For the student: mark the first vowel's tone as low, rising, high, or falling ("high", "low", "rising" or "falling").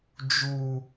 low